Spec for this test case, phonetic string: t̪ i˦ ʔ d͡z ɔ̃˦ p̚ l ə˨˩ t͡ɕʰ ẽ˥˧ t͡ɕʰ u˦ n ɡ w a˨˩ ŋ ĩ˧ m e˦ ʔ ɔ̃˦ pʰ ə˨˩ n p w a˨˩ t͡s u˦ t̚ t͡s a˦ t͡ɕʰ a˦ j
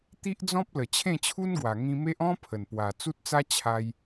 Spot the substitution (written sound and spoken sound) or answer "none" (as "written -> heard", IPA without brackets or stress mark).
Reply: none